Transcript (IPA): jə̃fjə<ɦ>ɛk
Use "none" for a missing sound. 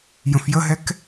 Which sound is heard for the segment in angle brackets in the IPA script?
ɦ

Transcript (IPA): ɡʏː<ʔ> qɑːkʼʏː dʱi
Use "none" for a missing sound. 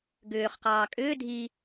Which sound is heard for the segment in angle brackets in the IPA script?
χ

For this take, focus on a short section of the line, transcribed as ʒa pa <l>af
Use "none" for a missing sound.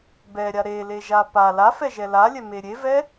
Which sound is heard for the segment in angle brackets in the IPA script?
l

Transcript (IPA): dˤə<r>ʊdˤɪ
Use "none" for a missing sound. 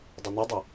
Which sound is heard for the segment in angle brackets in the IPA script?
n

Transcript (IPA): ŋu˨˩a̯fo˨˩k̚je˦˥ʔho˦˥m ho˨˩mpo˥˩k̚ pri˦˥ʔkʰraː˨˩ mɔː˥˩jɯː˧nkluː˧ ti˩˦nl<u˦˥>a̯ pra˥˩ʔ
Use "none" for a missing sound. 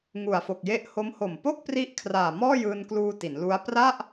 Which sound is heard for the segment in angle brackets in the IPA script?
u˦˥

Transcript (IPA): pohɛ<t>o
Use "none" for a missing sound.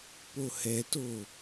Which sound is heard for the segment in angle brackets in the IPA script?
t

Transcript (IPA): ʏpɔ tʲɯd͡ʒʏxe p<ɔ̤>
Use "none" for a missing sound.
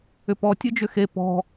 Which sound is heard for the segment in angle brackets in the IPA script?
ɔ̤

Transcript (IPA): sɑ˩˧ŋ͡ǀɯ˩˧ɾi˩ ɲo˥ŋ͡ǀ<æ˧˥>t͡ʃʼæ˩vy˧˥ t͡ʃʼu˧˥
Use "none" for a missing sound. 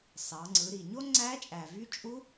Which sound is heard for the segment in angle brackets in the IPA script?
æ˧˥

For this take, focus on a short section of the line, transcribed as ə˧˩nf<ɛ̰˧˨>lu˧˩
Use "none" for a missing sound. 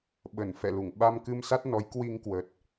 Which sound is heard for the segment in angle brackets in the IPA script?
ɛ̰˧˨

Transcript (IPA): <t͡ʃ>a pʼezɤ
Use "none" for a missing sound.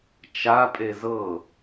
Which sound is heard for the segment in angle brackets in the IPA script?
t͡ʃ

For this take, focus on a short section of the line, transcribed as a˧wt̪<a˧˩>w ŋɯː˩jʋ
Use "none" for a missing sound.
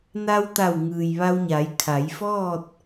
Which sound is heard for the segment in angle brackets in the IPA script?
a˧˩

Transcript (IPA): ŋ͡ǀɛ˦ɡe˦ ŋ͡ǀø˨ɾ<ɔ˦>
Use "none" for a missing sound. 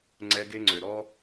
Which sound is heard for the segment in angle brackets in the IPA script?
ɔ˦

